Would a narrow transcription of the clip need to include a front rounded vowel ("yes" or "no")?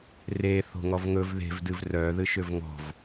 yes